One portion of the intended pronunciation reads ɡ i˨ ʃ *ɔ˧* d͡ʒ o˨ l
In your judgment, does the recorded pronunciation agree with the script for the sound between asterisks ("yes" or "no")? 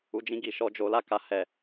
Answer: yes